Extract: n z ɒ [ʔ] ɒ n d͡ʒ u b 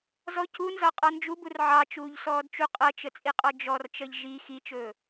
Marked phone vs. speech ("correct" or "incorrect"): incorrect